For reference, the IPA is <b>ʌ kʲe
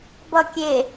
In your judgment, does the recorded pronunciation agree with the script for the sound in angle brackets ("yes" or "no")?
yes